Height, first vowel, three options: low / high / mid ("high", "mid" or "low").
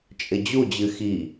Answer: high